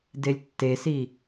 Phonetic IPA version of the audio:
d e lʲ tː e s i

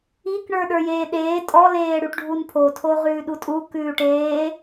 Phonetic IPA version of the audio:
i k ɳ ə˞ ɗ ə˞ j eː ɗ eː tʼ ɔ l eː ɽ ʉ ʈ ɖʱ u n pʰ o tʰ o ʁ ʉː ɗ u tʼ u k ʉː ʈ eː

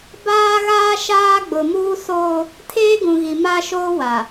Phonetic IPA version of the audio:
b aː˦ ɣ aː˦ ʃ aː˦ ɡ͡b ʊ˨ m uː˦ s oː˦ | tʰ eː˦ ɡ ũ˨ ɣ i˨ m a˦ ʃ oː˦ w a˨

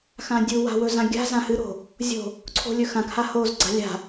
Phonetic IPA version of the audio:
x ã dʲ u w a̤ w ɵ z ã ɡʲ a̤ z ã h ɨ ɾ o̤ | zʲ o̤ | ǀʰ o̤ lʲ ɵ x ã k h a h o z ɡ͡ǀ a̤ lʲ a̤

